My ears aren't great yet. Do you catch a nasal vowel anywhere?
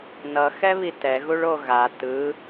no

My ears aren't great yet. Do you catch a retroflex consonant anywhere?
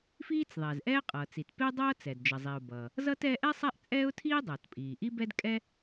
no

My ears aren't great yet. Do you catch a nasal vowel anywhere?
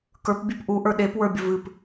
no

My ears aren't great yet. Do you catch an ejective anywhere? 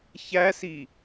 no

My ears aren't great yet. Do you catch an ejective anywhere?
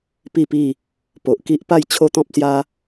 no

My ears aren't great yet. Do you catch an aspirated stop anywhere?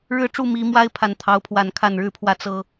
yes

